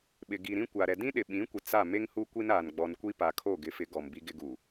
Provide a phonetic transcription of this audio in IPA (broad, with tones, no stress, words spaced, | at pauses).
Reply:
ɓɪ˨ ɡi˨ɾĩ˦kʷa˨ɾɛ˨ dĩ˦ɗɪ˨ɓĩ˨˦kʷɪ˨ t͡sa˦˨ me˦ŋhu˦ kʷi˦naː˨n ɡ͡bɔ˨nkʷi˦pa˨ kʰo˦˨ɡɪ˨˦fɪ˨˦ ɡɔ˨mbi˦ɡɪ˦ɡu˨